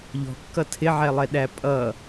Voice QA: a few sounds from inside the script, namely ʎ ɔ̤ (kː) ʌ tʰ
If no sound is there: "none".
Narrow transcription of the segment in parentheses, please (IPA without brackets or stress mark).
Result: kː